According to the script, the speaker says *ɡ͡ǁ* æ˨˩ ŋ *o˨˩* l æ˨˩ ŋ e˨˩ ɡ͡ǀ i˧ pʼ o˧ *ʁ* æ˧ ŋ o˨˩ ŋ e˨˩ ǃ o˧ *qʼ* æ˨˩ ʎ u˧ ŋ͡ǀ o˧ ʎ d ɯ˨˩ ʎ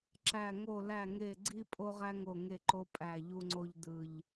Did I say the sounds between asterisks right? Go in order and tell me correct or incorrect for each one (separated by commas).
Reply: incorrect, correct, correct, incorrect